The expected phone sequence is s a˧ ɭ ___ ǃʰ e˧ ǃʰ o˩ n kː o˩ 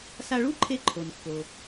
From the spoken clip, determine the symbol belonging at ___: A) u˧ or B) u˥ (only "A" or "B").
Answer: B